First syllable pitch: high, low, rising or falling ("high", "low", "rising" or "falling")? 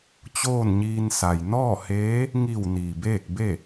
falling